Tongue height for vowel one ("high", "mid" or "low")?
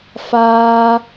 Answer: low